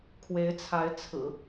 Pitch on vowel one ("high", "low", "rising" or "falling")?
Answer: rising